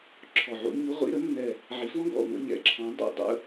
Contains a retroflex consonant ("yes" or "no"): no